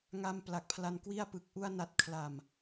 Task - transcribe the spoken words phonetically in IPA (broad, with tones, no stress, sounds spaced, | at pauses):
ŋ a˧ m p l a˨˩ k̚ pʰ l a˧ n k w i˥˩ a̯ p ɯ˨˩ k̚ ʔ u˧ a̯ n a˨˩ t̚ kʰ l a˨˩ m